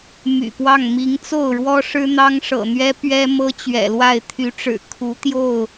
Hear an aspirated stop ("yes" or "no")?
yes